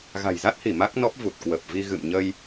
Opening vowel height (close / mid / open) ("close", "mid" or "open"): open